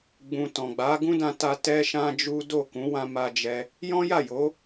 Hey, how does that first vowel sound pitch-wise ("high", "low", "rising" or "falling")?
low